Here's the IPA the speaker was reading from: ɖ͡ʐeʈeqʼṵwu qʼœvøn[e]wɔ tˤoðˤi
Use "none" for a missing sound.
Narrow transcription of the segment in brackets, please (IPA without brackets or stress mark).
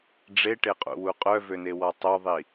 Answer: e